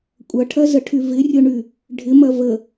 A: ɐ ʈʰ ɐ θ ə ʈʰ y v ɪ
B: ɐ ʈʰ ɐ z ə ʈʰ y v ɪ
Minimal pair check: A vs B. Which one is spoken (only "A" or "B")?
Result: B